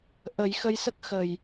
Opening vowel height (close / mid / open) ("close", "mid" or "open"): mid